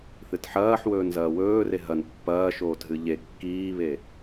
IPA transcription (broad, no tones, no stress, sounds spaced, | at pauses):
θ ɨ t ħ ɐː ħ w ɵː n z ɐː w ɵː r e ɦ ɐ n pː ɐː ʃ oː t ɦ ɨ ʎ e kː iː β e